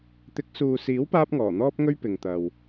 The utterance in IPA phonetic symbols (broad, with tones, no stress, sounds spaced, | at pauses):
t̪ ɪ˨˥ k̚ s uː˨ s iː˨˥ w p aː˥ p̚ ŋ ɔː˨˩ n̪ ɔː˥ p̚ ŋ ɵ˥ ɥ p ɪ˨ ŋ t̪ ɐ˨ w